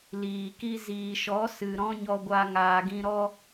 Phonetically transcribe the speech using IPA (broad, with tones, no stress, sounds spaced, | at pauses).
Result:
l iː˨ k i˦ z iː˨ ʃ ɔ˨˦ s ɨ˨ ɾ ɔ̃˦ ɲ ɔ˧ ɡʷ a˧ ŋ aː˨ ɡ ĩ˧ ɾ ɔ˦